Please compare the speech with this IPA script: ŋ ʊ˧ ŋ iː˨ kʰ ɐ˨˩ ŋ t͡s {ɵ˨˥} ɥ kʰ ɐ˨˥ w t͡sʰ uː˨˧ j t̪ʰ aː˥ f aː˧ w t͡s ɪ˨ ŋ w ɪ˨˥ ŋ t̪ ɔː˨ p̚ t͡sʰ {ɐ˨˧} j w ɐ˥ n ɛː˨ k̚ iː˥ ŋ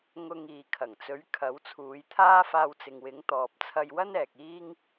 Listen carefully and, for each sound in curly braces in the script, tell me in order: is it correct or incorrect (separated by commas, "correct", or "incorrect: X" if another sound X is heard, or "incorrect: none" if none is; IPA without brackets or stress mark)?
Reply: correct, incorrect: ɐ˧